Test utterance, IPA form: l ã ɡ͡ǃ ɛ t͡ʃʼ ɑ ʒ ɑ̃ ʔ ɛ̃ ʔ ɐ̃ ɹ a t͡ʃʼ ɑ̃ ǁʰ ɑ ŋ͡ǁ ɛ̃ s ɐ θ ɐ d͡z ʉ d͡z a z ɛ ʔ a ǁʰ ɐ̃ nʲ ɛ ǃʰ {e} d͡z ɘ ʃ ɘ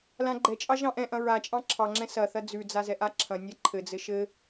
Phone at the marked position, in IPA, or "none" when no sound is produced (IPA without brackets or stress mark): ɘ